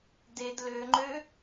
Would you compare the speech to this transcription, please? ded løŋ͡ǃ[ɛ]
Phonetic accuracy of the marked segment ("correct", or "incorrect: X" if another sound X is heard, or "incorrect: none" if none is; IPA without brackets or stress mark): incorrect: ø